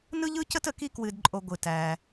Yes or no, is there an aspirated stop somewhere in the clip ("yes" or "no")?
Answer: no